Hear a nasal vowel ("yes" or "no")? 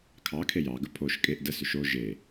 no